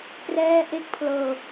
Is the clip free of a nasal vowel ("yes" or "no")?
yes